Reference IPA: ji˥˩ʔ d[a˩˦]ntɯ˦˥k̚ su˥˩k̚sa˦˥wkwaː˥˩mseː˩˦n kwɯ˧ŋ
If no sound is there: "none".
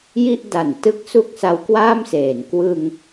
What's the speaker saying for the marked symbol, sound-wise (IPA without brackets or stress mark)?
a˩˦